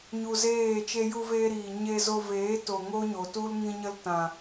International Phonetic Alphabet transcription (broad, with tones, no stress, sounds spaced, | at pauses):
ɲ u˧ z eː˦˨ t͡ʃ e˧ j u˧ v eː˧ ɾ iː˨ ɲ e˧ z o˧ v eː˨˦ t o˨ ŋ o˦ ɲ o˨ t u˦ l ŋ ĩ˧ ɲ ə˧ l t ã˨